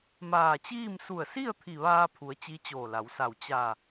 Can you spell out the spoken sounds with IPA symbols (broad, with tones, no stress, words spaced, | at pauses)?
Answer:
maː˧˩t͡ɕiː˥˨m su˧˩ə̯si˥˨ə̯ t̪ʰi˧˩ʋaː˧pʰu˩˧ə̯ t͡ɕi˧˥t͡ɕoː˧˩la˩˧wsa˧˩w t͡ɕa˧˩